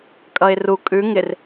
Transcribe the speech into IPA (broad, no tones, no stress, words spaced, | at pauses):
kʼʌɪ̯ru kʼʉ ŋɪr